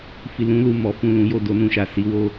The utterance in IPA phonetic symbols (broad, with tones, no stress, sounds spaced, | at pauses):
f i˨ l ũ˨˦ l u˦˨ m ɔ˨˦ f ũ˦˨ l ũ˨˦ j o˦˨ d o˧ n ũ˨ ʃ a˨ s i˨˦ w o˧